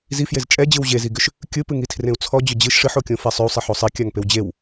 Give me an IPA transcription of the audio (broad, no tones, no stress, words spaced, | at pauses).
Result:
zifjez t͡ʃʼɛd͡ʑɯw ʑeziɡʏʃ | kʲɯpɨŋitʰrẽu̯ t͡sʰɔd͡ʑʏ d͡ʑɨʃ ʂɨħokʲõfe sˤʏu̯sˤeħo sˤikʲaŋpew d͡ʑew